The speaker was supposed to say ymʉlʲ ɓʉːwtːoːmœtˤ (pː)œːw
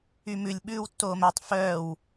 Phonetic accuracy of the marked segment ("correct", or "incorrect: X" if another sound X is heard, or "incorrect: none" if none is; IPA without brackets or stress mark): incorrect: f